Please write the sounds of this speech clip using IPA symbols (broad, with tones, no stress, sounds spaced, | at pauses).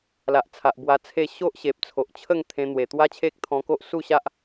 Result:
l a˨ ʔ t͡sʰ a˨ ʔ b w a˧ t͡sʰ e˥˧ ɕ o˦ ʔ ɕ e˨ p̚ t͡sʰ o˨ ʔ t͡ɕʰ ə˥˧ ŋ t̪ʰ ẽ˧ n̪ w e˨˩ t̪ w a˦ t͡ɕʰ e˦ k̚ t̪ʰ ɔ̃˧ k o˦ ʔ s u˥˧ ɕ a˦ ʔ